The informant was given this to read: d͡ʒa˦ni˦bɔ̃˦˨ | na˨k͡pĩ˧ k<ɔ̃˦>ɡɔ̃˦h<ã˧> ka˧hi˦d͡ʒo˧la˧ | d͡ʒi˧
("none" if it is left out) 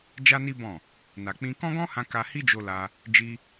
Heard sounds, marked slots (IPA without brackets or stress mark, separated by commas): ɔ̃˦, ã˧